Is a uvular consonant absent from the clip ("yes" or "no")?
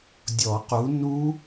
no